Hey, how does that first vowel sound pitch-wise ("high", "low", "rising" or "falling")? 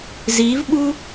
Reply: rising